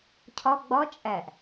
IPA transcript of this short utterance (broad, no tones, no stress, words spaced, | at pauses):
cʰɒ ɡ͡bɒ t͡ʃʼæʔ